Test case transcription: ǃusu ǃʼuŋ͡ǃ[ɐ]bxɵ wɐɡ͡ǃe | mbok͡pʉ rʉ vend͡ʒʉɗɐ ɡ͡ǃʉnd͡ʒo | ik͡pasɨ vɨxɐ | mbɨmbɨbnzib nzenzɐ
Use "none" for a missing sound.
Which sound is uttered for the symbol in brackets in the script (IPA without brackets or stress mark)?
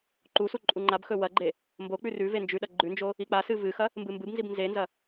a